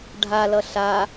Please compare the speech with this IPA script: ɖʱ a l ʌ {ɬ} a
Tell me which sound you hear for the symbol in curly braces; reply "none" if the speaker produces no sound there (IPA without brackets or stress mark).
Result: ɬ